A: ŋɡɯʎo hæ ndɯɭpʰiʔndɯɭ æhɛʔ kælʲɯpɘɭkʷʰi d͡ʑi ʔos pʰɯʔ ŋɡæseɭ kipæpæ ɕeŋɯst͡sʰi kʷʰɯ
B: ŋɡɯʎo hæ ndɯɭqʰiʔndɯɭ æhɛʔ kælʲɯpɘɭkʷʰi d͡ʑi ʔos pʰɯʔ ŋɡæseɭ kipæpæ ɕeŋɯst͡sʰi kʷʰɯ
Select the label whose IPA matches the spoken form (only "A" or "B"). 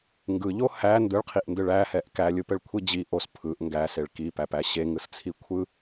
B